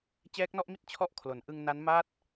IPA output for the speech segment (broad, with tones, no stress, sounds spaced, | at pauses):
t͡ɕ ɛː˦˥ k̚ n ɔ˥˩ ʔ m i˥˩ t̚ t͡ɕʰ ɔ˥˩ ʔ kʰ l o˩˦ n ʔ ɯ˧ ŋ n a˦˥ n m a˥˩ t̚